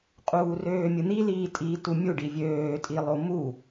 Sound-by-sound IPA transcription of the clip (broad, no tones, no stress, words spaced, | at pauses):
qʼuːrøːmʲɯn̪i liːtʼiːtumʲu ɖivʲøː tʼilˠomu